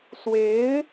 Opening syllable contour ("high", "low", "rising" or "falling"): rising